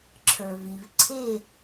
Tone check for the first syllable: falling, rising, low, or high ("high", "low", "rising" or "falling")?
low